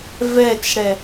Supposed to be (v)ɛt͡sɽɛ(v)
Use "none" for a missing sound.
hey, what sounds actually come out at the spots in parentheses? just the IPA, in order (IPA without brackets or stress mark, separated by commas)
v, none